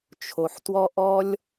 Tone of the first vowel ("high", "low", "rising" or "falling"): low